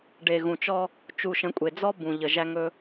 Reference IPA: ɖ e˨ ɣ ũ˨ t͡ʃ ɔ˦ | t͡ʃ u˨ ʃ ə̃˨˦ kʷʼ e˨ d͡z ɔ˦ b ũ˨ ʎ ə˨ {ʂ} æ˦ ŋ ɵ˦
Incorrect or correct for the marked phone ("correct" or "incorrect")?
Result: incorrect